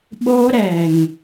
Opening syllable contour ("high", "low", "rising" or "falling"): high